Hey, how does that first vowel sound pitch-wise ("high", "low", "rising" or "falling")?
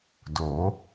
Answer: rising